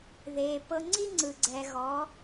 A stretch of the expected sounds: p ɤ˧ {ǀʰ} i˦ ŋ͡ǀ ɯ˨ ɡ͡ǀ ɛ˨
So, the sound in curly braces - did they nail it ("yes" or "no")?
no